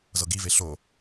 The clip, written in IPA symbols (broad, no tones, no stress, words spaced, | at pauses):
zɤɡive ɬo